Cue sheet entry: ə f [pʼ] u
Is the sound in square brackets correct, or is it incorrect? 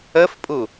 correct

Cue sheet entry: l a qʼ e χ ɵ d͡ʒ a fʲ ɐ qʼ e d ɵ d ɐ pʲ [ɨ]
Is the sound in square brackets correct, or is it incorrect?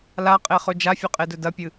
correct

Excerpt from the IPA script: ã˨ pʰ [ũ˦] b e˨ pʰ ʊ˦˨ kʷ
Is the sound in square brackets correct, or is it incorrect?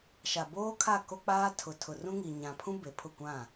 correct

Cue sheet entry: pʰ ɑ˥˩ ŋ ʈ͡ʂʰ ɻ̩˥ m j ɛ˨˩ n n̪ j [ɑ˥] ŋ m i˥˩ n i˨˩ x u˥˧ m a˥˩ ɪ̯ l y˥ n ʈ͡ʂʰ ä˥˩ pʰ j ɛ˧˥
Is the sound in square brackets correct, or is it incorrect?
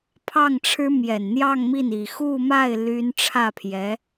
incorrect: ɑ˥˧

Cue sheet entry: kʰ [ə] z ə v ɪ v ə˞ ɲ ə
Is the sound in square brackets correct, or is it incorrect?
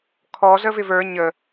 incorrect: ɔ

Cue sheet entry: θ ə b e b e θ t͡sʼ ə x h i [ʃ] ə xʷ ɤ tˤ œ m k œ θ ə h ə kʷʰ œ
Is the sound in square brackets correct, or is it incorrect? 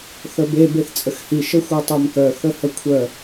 correct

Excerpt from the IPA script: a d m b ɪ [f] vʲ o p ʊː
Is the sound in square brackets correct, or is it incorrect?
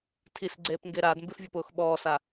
correct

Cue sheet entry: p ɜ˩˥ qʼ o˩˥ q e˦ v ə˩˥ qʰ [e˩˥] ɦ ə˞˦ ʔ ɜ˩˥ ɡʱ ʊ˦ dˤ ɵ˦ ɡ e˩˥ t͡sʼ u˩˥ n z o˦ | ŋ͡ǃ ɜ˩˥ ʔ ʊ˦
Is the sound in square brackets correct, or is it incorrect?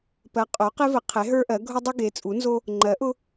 correct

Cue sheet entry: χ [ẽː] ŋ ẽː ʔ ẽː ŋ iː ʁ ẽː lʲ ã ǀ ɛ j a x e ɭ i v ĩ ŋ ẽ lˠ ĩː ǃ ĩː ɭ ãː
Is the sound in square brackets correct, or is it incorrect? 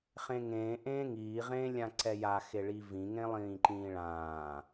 incorrect: ẽ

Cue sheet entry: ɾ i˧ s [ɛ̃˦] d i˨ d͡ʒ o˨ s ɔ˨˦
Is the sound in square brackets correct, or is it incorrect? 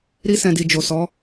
incorrect: ɛ̃˨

